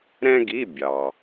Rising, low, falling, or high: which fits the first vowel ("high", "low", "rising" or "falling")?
high